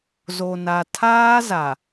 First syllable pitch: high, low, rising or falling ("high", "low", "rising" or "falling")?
low